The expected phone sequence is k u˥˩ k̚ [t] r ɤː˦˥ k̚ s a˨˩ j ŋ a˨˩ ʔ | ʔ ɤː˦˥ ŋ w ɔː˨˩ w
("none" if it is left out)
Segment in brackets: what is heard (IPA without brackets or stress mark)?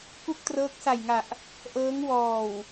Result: t